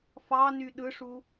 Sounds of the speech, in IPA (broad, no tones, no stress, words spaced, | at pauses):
fɑny ɗɯʂu